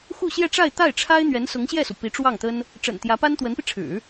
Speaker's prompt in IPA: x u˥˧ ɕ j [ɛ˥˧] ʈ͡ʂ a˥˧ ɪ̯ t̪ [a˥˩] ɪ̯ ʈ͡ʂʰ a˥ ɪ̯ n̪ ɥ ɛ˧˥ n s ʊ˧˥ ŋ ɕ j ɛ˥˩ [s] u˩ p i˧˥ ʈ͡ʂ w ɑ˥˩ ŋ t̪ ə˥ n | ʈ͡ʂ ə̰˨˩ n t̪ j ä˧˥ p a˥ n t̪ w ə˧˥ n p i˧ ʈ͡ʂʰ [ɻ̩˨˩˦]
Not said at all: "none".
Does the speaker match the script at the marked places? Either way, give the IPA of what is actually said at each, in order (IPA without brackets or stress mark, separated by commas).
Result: ɛ˥˧, a˥˩, s, ɻ̩˨˩˦